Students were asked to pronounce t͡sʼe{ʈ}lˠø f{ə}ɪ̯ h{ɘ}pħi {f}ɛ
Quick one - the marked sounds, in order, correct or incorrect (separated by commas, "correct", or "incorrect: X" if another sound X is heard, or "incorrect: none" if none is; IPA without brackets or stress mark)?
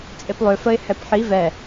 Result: incorrect: p, correct, incorrect: ɛ, incorrect: v